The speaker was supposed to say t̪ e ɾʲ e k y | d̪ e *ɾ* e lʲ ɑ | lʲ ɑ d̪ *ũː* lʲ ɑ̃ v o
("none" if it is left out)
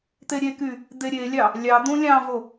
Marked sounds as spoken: ɾʲ, ũ

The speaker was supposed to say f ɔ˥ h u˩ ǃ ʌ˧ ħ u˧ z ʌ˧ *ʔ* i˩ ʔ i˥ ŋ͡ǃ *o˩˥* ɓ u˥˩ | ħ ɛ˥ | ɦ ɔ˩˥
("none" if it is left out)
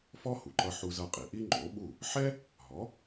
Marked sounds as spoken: qʼ, o˩˥

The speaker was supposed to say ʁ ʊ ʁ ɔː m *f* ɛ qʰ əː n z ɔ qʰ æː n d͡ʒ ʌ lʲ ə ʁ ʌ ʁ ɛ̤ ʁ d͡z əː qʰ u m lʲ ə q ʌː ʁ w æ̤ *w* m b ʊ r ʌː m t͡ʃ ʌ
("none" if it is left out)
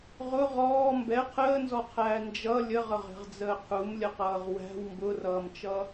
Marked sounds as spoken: b, w

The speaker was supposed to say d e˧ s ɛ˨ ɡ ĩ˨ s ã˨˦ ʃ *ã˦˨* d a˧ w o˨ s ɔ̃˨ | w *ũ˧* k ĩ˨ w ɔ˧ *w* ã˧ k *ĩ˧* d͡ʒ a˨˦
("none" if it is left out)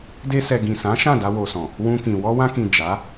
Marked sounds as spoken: ã˦˨, ũ˧, w, ĩ˨

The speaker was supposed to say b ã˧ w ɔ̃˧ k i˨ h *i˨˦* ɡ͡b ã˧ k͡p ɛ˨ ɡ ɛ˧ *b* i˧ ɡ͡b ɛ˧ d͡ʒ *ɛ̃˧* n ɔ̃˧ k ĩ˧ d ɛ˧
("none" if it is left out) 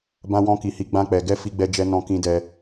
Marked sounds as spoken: i˨˦, f, ɛ˧

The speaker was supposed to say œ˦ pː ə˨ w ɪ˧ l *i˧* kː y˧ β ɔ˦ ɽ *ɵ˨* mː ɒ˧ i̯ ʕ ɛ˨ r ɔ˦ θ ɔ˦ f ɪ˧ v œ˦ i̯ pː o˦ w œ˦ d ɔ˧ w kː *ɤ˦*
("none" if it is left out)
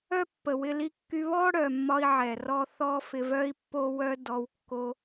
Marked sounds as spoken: i˧, œ˨, o˦

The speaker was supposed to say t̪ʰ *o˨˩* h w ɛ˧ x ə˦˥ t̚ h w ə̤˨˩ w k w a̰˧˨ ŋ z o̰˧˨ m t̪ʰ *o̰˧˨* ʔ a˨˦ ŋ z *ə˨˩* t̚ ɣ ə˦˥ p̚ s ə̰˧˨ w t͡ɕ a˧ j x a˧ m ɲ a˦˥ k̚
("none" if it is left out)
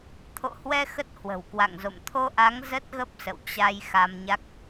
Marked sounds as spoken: o̰˧˨, o˧, ə˦˥

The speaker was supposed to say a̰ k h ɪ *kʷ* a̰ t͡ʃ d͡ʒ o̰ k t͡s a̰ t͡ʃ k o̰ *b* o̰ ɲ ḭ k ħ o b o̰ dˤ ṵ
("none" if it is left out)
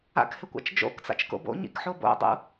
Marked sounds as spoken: kʷ, b

